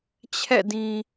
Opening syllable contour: falling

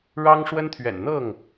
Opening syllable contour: high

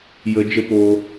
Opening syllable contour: high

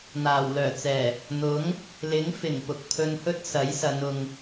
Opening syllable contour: low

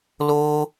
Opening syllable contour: high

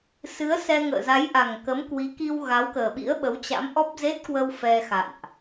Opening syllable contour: rising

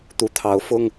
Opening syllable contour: rising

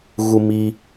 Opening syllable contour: high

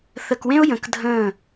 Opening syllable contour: low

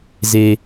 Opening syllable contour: high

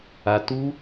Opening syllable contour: low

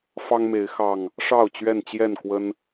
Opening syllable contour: high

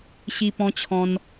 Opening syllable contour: high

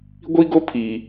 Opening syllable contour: high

